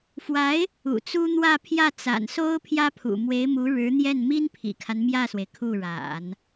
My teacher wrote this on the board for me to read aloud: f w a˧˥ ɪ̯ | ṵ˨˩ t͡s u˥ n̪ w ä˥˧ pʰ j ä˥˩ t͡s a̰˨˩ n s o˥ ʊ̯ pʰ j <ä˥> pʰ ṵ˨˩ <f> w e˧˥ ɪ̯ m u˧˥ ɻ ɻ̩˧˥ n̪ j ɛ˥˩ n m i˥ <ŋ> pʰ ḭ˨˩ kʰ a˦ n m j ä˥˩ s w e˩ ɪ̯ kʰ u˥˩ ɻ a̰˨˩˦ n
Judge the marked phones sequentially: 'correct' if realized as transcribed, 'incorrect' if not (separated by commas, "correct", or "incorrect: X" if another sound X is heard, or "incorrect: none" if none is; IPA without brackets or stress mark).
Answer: correct, incorrect: m, incorrect: n